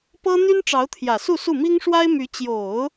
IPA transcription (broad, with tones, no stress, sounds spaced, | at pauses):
p ɤ˥ n̪ y˥ n ʈ͡ʂ ɑ˧˥ ʊ̯ t̪ʰ j ä˨˩ s u˥˧ s u˥˩ m i˥ ŋ ʂ w a˥ ɪ̯ m y˧˥ t͡ɕ j o˨˩˦ ʊ̯